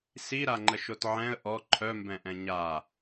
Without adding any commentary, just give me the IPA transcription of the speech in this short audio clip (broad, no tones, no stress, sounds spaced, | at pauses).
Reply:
s i ɾ a ŋ͡ǃ ə ʃ o t ʕ ɛ̃ ə̯ ʔ ɔ ǃʰ œ m b ɛ̃ ʔ ɛ̃ ɲ a